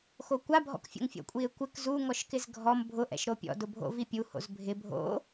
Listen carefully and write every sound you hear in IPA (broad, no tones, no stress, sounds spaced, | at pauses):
x o kʷ a bʱ ɔ̰ k fʲ o̰ ŋ fʲ ɔ̰ kʷʼ i e̯ kʷ ɪ k z u ŋ ɔ ʃ k ɪ z ɡʱ ɔ m bʱ ʊ ʔ ɛ̰ ʃ ɾ o pʲ ɔ̰ d ʊ bʱ o̰ v i pʲ u h o̰ z bʱ ɪ bʱ o̰